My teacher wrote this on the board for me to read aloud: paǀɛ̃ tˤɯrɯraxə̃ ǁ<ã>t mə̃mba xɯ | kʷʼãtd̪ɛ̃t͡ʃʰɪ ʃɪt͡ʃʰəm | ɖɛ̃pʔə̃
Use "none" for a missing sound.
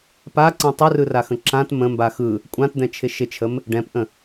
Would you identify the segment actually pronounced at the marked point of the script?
ã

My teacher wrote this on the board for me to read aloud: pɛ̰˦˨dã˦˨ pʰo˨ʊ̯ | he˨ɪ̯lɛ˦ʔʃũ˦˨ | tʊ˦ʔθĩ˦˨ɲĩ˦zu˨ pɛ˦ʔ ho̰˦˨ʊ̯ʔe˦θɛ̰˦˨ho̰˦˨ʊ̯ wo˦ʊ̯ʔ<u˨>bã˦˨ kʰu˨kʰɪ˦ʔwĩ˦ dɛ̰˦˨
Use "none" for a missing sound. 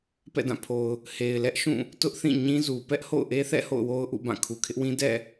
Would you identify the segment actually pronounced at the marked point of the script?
ṵ˦˨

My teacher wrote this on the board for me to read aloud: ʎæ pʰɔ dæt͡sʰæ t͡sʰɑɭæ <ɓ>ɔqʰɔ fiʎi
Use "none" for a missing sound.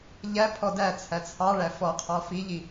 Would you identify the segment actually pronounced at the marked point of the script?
f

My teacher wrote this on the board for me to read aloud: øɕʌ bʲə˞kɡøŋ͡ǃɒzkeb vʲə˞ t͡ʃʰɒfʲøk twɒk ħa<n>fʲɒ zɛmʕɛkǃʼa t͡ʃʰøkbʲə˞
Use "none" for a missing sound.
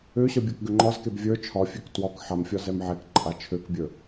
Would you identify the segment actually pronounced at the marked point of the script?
m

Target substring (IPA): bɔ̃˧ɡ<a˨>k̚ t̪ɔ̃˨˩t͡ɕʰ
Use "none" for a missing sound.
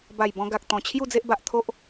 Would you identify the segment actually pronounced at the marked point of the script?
a˨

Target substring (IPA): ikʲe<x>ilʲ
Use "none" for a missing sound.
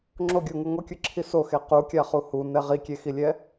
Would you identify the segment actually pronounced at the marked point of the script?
x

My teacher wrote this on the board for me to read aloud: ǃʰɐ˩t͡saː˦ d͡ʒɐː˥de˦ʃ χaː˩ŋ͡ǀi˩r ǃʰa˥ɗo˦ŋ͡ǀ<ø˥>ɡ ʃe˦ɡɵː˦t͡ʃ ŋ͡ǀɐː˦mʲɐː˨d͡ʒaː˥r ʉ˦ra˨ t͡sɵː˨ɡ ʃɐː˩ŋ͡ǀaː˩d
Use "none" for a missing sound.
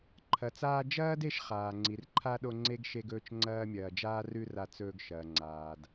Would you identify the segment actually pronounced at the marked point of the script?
e˥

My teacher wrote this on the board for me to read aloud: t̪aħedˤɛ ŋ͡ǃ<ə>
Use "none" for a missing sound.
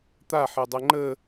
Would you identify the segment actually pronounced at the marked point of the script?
ə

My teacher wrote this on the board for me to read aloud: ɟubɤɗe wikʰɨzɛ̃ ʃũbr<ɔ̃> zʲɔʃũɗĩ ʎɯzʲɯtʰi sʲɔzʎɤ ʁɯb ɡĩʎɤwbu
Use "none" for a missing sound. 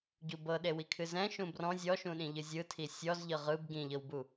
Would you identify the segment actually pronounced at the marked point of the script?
ɔ̃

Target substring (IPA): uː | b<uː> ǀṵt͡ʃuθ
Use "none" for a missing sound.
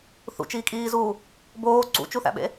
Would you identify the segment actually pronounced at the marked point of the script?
oː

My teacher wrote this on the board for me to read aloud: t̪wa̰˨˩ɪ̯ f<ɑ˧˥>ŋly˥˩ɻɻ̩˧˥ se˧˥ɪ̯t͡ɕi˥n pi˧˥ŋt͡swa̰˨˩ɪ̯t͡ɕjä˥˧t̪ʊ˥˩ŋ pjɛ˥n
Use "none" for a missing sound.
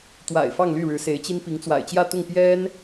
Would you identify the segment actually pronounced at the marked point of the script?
ɑ˥˧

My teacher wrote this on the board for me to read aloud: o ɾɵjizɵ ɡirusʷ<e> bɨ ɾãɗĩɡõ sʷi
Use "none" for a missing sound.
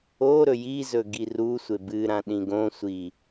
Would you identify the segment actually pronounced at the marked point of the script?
e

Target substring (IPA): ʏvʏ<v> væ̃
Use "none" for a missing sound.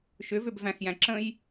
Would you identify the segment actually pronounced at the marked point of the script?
b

